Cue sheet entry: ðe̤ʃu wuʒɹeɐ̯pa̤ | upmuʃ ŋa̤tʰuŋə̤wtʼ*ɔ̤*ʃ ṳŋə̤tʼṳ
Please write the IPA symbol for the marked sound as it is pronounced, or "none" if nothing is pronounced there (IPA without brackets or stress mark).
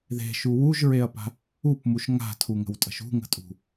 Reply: ə̤